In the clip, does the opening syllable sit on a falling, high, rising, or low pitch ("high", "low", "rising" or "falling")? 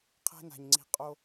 high